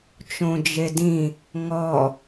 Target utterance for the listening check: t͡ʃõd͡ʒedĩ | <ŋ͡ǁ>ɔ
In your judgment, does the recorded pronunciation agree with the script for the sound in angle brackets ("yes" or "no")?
no